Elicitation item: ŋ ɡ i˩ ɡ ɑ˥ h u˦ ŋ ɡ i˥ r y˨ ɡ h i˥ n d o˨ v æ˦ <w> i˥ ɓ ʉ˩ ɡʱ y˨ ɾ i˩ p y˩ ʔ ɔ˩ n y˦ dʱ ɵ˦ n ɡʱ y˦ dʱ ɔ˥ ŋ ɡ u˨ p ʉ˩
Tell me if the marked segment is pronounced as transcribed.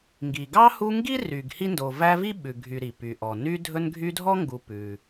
no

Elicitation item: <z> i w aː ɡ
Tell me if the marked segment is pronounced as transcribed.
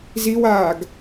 yes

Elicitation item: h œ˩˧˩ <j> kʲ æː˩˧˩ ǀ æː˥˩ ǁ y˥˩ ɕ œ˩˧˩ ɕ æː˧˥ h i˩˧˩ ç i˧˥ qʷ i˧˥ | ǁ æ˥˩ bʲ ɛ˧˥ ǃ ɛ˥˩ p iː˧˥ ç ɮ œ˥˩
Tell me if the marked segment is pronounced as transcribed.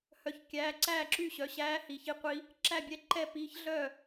no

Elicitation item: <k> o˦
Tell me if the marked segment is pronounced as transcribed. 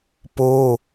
no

